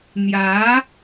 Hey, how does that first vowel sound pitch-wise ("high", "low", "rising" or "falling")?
rising